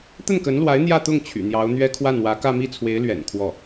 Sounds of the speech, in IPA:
t̪ ə˥˩ n k ə˧˥ n l w a˧˥ ɪ̯ n̪ j ä˥˧ t̪ ʊ˥˩ ŋ t͡ɕʰ y̰˨˩ n̪ j ɑ˧˥ ʊ̯ n̪ ɥ ɛ˥ kʰ w a˥˩ n w ä˧˥ k ä˥˧ m i˥˩ t͡sʰ w e˧˥ ɪ̯ l ɥ ɛ̰˨˩ n kʰ w ɔ˥˩

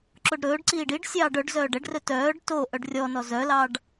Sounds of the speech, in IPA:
ǁ o ɖ ɾ ɵː ɖ ǀ iː ɖ i ɖ sʲ ɑː ɖ œ ɖ z œː ɖ ɛ ɖ r ɵ t œː ɖ t o ʔ œ ɖ rʲ ɔ n ɔ z œ l ɑ ɖ

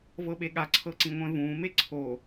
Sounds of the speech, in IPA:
v ɤ ɓ e ɠ a ǀʰ ɤ ǀ ĩ ŋʷ ɛ̃ v ũː m e ǀʰ o

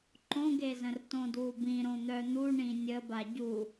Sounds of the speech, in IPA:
ǃ õ ɡ e z ə̃ r t õ d w u b ĩ ɾ õ n̪ œ n̪ u ɳ ĩ nʲ ə b a ɟ u

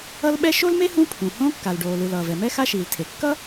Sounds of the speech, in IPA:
ʌ˥ l ɓ ɛ˥ ʃ o˥ l m e˥ h ũ˥ pʰ ũ˩ h õ˥ kː a˩ l ɖ oː˩ l ɯ˩ l ʌː˩ v ɛ˩ m ɛ˥ x a˥ ʃ iː˩ l tʰ e˩ kː ʌ˥

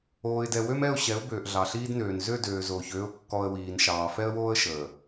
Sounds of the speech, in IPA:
oː˨ ɪ̯ d ɛ˨ w ø˦ m ɛ˦˨ ʊ̯ ɕ ɛ˨˦ ʊ̯ b øː˨ ʔ ɮ ɑ˨ ɬ iː˦ d n øː˨ n z ø˦˨ d øː˨ z oː˨ ç øː˦ ʊ̯ kː ɔ˦ ə̯ w iː˨ n ʃ ɑː˨ f ɛ˦ ə̯ w oː˦ ə̯ ʃ əː˨

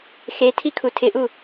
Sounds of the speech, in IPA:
x e tʰ i kʰ u tʰ ɪ ʔ u

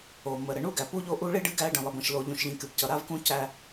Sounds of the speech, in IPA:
o˨ m ə˨ ɾ ə˨ ɳ u˦ ɡ æ˨ p u˦ ʎ o˦ ʔ u˦ ɭ i˦ ɖ ɨ˦ ɡ æ˦ ɖ ə̃˨ lˠ ə˨ b ə̃˨ ʃ l o˨ ʎ ũ˨ ʃ ʎ ĩ˨ k ɨ˨ b c ʌ˨ ɾ a˦ v k ũ˦ c æ˦

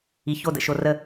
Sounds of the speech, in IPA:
i˨ ç o˦˨ d ə̰˨ ʃ o˨ r ə˨

